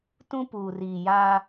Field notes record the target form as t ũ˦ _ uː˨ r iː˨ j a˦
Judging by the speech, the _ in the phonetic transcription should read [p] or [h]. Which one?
p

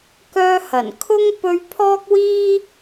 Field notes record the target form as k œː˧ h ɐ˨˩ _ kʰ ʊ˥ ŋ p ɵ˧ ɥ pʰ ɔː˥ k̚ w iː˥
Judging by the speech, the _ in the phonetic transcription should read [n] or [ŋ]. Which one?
n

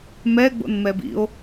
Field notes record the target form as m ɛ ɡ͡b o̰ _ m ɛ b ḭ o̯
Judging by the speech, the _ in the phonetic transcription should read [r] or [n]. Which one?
n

